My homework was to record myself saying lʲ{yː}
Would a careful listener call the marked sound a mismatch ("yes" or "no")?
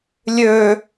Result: yes